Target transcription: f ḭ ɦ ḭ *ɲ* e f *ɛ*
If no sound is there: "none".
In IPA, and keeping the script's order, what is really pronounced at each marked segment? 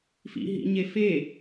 ɲ, e

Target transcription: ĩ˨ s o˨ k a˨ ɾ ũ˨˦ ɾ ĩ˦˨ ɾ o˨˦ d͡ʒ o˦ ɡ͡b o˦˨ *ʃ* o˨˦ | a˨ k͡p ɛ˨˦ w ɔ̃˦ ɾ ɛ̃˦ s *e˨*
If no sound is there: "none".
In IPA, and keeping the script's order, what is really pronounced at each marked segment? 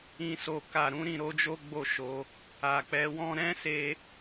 ʃ, e˧

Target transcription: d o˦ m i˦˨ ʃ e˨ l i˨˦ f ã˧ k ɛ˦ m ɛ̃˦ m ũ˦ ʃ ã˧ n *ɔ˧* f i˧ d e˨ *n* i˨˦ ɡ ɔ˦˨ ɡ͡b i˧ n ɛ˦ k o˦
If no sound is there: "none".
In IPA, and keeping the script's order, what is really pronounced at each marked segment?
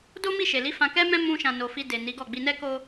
o˧, n

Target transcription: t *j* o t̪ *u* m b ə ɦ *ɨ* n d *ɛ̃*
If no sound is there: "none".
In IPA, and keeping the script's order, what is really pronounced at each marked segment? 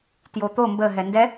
j, o, ɛ, ɛ

